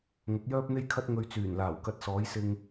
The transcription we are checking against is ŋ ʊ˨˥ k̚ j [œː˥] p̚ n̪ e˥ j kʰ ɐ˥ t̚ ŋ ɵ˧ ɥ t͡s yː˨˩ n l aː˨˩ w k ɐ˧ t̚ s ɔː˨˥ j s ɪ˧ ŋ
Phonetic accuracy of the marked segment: correct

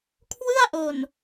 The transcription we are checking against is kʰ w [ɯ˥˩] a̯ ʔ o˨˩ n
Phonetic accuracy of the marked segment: correct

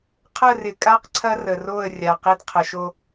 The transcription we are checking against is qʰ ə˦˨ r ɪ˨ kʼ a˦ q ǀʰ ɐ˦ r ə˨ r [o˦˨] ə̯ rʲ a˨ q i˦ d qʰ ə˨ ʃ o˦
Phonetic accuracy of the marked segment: correct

